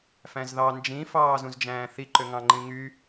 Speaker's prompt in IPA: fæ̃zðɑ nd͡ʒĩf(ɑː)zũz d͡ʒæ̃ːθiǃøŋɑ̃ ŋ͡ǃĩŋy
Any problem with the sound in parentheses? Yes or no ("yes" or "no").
no